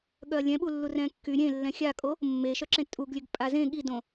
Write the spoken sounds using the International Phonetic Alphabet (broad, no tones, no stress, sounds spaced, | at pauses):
ɠ œ ɐ̯ lʲ ɛ̃ ɓ u lː u r ɛ̃ kː y ɾʲ ẽ lː ɛ̃ xʲ a kʼ o | mː e ʃ œ ǁ ẽ tʼ u ɡ lʲ ø ɡ pʼ a z ẽ ɠ i d õ